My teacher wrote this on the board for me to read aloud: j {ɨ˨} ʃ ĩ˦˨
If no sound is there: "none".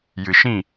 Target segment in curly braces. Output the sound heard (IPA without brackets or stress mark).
ɨ˨